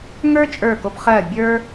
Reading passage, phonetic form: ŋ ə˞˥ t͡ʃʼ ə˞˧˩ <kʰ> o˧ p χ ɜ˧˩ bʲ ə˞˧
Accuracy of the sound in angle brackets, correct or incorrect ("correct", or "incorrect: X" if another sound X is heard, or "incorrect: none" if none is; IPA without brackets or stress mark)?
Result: incorrect: k